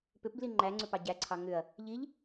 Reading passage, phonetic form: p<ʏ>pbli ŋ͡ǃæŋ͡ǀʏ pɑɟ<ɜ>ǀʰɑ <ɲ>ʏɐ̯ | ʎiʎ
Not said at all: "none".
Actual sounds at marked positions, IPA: ʏ, æ, ŋ

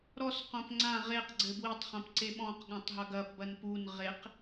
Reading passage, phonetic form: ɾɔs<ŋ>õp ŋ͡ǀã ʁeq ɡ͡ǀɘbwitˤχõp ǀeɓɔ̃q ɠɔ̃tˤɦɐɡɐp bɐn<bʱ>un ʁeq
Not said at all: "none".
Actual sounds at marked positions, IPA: q, p

